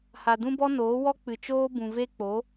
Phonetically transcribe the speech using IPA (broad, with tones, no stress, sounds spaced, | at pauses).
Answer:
h a˨ d ũ˦ b ɔ˦ n oː˨˦ w ɔ˦ k͡p ɨ˨ t͡ʃ oː˦ b ũ˨ v e˦ k͡p o˨˦